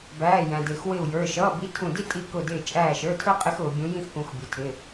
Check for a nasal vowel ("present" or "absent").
present